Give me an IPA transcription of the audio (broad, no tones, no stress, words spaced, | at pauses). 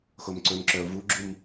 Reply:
xomǀɵmǁœʊ̯ vuɡ͡ǁum